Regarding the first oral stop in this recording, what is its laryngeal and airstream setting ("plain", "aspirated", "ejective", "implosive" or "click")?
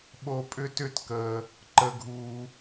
implosive